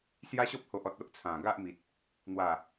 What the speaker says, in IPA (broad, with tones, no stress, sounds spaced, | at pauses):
s j a˦ ɕ ɔ˦ p̚ h o˨ ʔ ɔ˨ t̚ o˦ ʔ t͡sʰ ã˨˩ ɡ a˦ ʔ m i˨ t̚ | n̪ w a˨˩